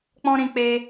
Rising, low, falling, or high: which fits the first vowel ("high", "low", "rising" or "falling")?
high